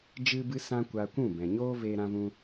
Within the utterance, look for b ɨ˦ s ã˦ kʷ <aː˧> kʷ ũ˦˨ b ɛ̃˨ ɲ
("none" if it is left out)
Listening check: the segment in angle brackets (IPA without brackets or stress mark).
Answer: a˧